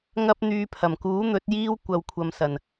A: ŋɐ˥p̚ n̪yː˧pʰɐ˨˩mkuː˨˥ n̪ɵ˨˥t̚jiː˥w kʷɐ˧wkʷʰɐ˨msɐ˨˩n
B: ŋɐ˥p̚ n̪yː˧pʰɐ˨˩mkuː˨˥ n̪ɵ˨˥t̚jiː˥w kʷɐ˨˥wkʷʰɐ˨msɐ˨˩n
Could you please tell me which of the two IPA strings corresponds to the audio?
A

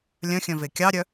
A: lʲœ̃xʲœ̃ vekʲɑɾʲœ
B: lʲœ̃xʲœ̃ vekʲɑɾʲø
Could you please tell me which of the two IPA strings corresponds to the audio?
A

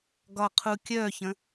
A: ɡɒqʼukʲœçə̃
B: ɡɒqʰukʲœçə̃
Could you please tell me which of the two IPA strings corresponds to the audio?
B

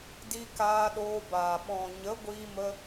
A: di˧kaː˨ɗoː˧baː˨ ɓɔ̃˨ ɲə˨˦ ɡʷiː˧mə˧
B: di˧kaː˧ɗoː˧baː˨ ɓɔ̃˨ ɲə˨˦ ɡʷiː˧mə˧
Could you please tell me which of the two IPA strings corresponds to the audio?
B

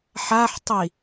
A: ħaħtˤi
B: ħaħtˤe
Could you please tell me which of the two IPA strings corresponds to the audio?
A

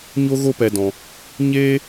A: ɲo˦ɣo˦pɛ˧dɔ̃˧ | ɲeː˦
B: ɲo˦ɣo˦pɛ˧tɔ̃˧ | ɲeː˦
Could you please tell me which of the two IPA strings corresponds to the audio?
A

